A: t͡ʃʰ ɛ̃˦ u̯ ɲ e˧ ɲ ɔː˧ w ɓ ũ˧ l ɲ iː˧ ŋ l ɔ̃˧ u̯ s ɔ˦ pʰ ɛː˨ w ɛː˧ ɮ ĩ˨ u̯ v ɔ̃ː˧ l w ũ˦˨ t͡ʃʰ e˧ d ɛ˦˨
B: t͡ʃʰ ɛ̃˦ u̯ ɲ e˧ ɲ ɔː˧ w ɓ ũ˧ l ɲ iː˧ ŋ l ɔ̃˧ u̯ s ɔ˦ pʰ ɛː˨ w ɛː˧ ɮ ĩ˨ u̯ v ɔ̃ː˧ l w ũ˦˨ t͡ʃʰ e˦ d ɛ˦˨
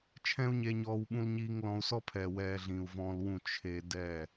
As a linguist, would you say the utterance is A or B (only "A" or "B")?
A